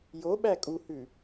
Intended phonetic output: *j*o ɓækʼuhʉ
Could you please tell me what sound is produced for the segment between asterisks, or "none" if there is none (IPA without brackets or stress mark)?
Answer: j